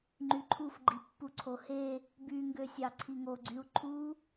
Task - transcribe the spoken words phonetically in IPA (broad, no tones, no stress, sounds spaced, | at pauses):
ŋ͡ǃ y ǃʰ u f ɡ͡ǃ i pː u ǀʰ o h e | b y ŋ ɡ ø sʲ ɑ ǀʰ i ŋ o ɡ͡ǀ y u̯ ǃʰ u